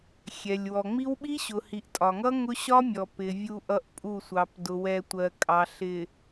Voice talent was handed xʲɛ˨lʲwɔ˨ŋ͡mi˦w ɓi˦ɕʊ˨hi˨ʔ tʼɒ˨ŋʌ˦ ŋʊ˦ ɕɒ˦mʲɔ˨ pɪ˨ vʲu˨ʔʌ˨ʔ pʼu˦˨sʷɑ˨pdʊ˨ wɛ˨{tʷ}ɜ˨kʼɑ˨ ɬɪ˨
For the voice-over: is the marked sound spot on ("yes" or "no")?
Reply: yes